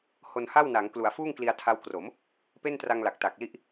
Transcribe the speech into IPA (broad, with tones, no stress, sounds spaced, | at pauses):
h o˧ n h a˥˩ w n a˩˦ ŋ k l u˩˦ a̯ f uː˥˩ ŋ k l i˧ a̯ tʰ a˦˥ w k r o˩˦ m | p e˥˩ n t r a˧ ŋ l a˨˩ k̚ t a˨˩ k̚ l i˥˩ ʔ